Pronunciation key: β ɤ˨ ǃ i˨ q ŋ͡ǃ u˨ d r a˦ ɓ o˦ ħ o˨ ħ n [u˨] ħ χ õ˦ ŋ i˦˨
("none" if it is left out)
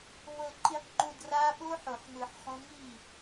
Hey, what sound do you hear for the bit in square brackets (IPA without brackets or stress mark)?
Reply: ɯ˨